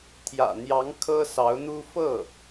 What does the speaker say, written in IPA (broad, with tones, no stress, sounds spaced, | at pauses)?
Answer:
t̪ʰ j ä̰˨˩ n̪ j ɑ˧˥ ŋ kʰ ɤ˥ s ɑ˧˥ ʊ̯ n̪ u˥ f ɤ˥˩